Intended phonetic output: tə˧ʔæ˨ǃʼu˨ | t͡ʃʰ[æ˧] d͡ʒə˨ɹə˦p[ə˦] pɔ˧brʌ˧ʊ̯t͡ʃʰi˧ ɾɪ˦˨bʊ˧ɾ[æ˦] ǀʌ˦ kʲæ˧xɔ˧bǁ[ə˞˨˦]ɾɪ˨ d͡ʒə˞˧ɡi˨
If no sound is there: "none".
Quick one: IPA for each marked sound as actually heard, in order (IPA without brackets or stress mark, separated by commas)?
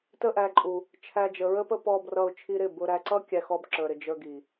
æ˧, ə˦, æ˧, ə˞˨